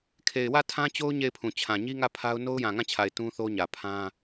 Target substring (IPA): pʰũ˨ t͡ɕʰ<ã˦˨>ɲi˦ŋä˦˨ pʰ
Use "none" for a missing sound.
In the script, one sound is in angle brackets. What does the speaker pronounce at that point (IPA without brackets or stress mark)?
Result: ã˨